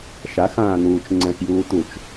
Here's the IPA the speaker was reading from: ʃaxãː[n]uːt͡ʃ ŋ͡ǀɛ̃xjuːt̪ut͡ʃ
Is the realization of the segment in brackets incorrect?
no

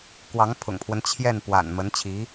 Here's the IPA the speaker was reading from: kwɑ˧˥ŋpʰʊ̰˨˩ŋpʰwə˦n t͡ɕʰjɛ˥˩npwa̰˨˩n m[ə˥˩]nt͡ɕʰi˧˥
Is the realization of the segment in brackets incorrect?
yes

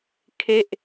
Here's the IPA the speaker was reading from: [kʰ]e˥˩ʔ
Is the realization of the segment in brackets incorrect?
no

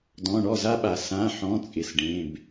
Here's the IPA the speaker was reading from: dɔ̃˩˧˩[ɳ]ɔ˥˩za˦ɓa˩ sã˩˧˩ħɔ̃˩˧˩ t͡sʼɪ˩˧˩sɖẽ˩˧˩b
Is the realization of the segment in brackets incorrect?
no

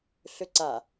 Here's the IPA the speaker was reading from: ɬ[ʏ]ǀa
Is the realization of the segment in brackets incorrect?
no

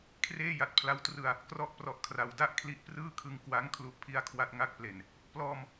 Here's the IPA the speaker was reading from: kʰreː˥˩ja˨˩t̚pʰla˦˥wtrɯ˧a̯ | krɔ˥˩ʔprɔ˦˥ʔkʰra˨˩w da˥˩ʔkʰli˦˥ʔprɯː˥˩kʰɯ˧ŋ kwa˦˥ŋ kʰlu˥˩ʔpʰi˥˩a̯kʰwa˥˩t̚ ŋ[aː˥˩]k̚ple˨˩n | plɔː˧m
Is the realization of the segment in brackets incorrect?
yes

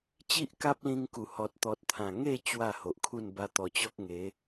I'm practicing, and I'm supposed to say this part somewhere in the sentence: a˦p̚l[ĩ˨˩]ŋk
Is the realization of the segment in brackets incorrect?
yes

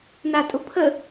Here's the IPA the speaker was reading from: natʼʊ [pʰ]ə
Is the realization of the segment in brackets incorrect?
no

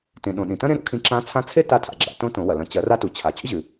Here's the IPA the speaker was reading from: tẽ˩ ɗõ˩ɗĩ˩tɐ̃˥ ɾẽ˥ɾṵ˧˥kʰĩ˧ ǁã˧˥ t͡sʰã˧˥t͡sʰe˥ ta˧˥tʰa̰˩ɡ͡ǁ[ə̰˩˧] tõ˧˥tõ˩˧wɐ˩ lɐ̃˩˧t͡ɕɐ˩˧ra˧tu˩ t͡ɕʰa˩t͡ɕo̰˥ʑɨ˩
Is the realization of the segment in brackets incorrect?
yes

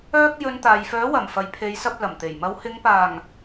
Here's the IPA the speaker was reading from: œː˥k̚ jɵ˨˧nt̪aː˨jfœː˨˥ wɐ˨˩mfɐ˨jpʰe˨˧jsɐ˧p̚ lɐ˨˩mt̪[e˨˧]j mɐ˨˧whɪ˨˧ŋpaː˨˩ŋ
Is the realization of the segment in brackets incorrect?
yes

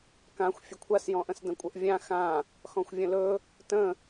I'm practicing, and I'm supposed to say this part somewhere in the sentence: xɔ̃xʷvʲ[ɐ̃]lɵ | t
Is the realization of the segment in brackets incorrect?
yes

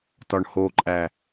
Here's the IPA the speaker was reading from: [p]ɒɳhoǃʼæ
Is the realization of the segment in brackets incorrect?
yes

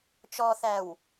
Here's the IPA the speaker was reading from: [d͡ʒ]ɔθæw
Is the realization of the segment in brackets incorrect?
yes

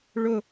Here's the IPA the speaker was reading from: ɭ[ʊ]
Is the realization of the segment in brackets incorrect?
no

